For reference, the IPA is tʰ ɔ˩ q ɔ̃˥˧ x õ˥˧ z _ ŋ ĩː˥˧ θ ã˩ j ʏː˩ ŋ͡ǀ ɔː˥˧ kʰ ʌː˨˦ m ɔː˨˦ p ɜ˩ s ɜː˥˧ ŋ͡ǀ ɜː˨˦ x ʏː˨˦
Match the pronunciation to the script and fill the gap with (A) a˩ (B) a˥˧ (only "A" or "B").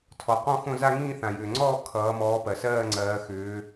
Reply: B